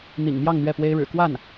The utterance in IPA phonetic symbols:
n̪ḭ˨˩ŋmjɑ˥˧ŋ n̪ɥɛ˥˩pwe˥ɪ̯ɻɻ̩˨˩ kwa˥˩n

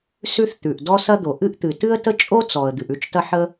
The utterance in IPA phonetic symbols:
sʉ˥θt̪ʉ˩ʔ dɔ˥ sɐ˥d̪o˩ ʔɨ˥ʔt̪ɨ˩ tɨ˥ə̯tə˥t͡ʃʼo˥ t͡sɔ˩ə̯ d̪ɨ˩ʔʉ˥t͡ʃtɐ˥ħə˥

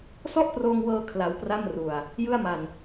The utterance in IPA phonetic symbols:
sɔ˥˩ʔproː˧ŋwɤː˧ kʰla˦˥wpra˥˩mru˧a̯ | jɯ˥˩a̯ma˧n

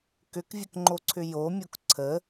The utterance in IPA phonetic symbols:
kʏkvʲəkŋ͡ǃoǀʰʏ jomʲok ǀʰə

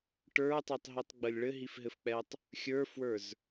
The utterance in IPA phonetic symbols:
ʈə˞tˤɛtˤɦitˤɡ͡bəlʲ ɭɘɦifɦɘfk͡pɛtˤ | xʲə˞fwə˞z

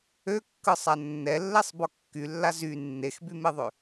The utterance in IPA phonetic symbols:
økːɯsˤa nːɛlːɛsˤbɔ kːylːa zy nːexbymeðˤø

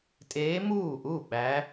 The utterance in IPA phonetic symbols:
tʼeː˧˥muː˥˩ʔu˥˩ ɓæ˧˥

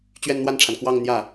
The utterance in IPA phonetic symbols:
t͡ɕɥɛ˥˧nn̪wa˥˩nʈ͡ʂʰa˩n kwɑ˥˧ŋ n̪jä˥˩

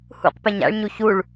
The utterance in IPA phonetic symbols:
hṵqpɛɲ a̰ɭɲu çuɭ

